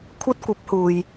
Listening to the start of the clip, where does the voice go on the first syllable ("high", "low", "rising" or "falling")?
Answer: high